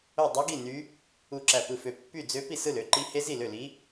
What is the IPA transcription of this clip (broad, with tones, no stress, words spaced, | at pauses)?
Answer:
o˥˧dˤu˦˥ɡi˥˧ ny˦˥ | u˥˧ǁæ˥˧pɯ˥˧fø˥˧ pːy˥˧d͡zø˦˥ pi˥˧sɯ˥˧lø˦˥ǃi˦˥ he˦˥zi˥˧lø˥˧li˦˥